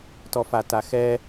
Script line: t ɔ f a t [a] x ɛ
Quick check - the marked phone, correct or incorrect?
correct